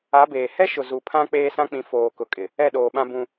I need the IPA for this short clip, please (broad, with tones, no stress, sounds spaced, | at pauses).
a˨˦ b eː˨ h ɛ˦ ʃ ʊ˨ z u˨ pʰ ã˦ k͡p eː˦ s ã˦ k͡p ĩ˨˦ f oː˨ k ʊ˨ kʼ ɪ˨ | ɛ˦˨ ɗ oː˨ ɓ ã˦ b ũ˦